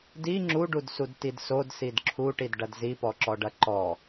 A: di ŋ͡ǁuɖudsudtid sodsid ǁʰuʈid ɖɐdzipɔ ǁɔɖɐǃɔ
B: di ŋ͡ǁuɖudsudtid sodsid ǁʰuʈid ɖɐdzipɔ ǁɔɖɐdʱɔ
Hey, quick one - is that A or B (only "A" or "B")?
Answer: A